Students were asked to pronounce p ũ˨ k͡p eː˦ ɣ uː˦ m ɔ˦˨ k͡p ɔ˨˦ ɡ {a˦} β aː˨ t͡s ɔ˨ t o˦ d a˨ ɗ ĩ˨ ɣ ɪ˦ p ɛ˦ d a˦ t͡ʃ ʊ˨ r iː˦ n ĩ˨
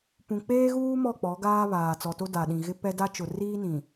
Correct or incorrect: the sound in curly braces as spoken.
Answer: incorrect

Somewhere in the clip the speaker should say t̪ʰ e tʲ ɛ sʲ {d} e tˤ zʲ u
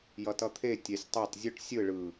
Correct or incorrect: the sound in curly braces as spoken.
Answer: incorrect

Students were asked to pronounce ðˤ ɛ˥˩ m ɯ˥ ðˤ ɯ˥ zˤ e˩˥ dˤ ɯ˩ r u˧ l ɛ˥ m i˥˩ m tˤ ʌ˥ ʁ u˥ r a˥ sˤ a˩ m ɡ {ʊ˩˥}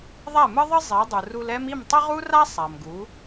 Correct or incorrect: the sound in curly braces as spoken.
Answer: incorrect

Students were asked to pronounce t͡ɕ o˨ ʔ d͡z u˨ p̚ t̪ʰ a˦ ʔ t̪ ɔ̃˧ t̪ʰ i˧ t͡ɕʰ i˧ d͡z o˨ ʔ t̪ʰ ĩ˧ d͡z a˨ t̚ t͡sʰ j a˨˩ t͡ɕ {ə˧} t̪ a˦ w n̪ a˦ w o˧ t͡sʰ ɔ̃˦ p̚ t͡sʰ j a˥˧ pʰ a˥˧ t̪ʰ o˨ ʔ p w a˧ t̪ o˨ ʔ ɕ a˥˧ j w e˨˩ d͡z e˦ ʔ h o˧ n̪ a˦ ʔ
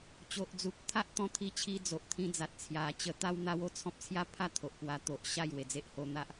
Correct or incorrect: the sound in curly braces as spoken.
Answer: correct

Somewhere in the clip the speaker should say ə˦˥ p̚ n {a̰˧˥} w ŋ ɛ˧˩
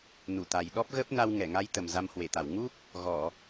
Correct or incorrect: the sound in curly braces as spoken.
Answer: incorrect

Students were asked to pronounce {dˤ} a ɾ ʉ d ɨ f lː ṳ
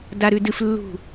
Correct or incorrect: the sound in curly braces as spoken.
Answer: incorrect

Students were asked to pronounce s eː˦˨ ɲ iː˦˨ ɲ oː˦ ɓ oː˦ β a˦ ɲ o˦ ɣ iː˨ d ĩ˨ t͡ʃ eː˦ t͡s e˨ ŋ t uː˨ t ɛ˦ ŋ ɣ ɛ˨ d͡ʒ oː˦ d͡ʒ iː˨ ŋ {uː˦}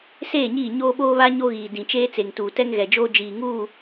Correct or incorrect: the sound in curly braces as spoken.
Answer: incorrect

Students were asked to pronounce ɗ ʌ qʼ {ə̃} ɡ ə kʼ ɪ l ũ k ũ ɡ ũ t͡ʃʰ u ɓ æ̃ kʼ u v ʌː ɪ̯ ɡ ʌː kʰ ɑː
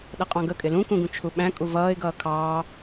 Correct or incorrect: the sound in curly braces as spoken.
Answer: incorrect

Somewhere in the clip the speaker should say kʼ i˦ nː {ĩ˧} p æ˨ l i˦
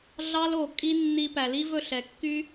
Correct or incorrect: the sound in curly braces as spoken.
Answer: incorrect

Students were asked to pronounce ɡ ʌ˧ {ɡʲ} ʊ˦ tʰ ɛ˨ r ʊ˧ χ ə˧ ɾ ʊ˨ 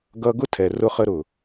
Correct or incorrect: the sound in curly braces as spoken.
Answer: incorrect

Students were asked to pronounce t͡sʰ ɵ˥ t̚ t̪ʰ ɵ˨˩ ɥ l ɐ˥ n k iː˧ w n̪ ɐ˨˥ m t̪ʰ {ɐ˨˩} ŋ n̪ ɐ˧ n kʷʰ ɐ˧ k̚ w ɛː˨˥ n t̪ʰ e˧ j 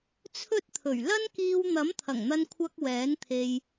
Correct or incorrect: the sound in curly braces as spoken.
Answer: correct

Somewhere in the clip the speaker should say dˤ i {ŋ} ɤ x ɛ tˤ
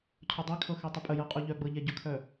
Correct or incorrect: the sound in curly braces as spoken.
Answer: incorrect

